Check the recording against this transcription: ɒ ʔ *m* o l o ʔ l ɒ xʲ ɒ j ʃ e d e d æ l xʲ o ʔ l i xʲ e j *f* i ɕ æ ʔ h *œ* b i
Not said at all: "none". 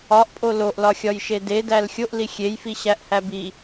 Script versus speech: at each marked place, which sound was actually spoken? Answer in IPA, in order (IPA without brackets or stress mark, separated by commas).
pʼ, f, æ